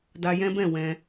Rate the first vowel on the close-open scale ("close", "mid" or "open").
open